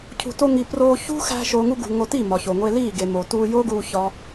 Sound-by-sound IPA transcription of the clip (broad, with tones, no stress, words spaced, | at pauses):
cʰṳ˨to˧ŋi˨ proː˧ çṳ˦xæ̤˧ ʃoː˨ŋu˧ɡṳ˨ ŋo˧ ti˦˨mɒ˨ ço˨ŋʷe˧liː˦˨ ɡe˨mo˨tuː˧ jo˦ɡuː˧ çɒ˦